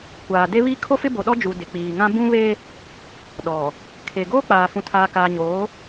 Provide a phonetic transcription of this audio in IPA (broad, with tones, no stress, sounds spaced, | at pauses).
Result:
kʷ aː˨ d e˦ β i˦ kʰ o˦ f ɪ˦ b o˨ ɗ ɔ˦ d͡ʒ u˨ d ɪ˨ k͡p iː˨ ŋ ã˦ b ũ˦ β e˦ | ɗ ɔ˨ | kʰ e˨ ɡ oː˦ k͡p aː˨ f ũ˨ tʰ aː˨ k aː˨ ɲ oː˨˦